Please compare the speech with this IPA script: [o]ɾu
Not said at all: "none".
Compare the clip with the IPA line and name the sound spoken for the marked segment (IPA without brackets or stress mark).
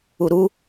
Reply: u